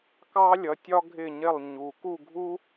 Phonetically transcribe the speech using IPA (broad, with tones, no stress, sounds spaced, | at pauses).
k ɑ˥ lʲ ʌ˨˦ tʲ ɒ˥ ɡʱ ɪ˥˨ ɲ ɪ˥˨ lˠ ɲ u˨ k u˥˨ ɡʱ u˥